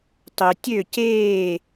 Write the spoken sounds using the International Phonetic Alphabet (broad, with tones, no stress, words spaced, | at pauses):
tˤø˧tʲø˥˧ ceː˥˧